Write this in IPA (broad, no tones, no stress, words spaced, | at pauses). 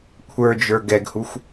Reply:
kʷʰə˞d͡ʒə˞ ɡɛɡhuxʷ